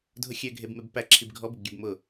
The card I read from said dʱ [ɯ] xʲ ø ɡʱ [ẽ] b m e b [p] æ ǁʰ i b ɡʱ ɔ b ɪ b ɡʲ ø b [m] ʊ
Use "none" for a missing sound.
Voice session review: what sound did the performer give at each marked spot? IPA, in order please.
ʊ, e, p, m

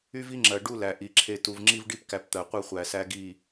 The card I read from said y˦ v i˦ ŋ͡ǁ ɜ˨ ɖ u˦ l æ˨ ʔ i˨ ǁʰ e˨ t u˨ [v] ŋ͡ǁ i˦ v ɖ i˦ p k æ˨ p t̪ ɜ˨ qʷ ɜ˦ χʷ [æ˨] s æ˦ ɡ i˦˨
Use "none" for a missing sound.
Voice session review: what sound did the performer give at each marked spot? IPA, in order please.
v, æ˨

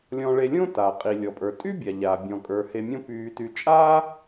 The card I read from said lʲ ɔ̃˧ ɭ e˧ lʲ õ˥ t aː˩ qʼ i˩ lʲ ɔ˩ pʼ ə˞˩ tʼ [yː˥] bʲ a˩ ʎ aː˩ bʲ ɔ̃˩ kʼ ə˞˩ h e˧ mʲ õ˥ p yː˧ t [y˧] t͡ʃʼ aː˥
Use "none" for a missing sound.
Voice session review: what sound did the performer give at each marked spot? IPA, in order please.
y˥, y˧

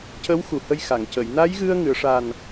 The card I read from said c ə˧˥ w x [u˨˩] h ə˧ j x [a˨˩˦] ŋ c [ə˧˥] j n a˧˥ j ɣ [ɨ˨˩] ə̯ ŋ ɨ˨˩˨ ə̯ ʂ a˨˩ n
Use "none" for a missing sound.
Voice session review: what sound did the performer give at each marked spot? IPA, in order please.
u˨˩, a˨˩˨, ə˨˩˨, ɨ˧

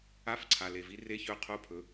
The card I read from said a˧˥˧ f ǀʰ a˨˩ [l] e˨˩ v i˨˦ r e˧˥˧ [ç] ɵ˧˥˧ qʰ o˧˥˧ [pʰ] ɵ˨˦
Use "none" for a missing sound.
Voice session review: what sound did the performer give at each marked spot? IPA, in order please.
l, ç, pʰ

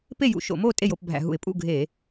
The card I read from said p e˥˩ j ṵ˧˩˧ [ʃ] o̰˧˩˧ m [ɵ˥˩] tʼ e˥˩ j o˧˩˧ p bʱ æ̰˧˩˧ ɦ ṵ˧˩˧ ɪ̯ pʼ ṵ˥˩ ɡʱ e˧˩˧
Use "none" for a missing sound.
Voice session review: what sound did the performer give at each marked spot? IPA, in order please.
ʃ, o˥˩

